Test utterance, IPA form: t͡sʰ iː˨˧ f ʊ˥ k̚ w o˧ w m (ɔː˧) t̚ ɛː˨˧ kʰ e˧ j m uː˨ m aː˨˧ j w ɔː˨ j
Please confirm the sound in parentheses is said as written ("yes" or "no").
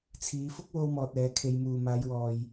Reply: no